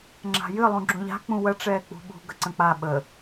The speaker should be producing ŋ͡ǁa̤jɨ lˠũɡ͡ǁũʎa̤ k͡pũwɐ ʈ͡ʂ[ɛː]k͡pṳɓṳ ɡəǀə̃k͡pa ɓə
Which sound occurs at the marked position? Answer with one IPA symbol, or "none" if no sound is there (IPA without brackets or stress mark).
ɛː